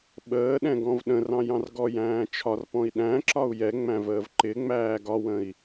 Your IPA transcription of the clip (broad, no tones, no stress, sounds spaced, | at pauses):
ɓ əː ɗ ɛ̃ ɡ ɔ̃ v ɗ ə̃ r ɑ̃ j ɑ̃ r ɡ ɔ j æ̃ː t͡ʃʰ ɒ r p ɔ̃ i̯ ɗ æ̃ ǁ ɒ u̯ j ɛ ŋ͡m æ̃ v əː v ǃ ɪ ŋ͡m æː ɡ ɒ w ə̃ i̯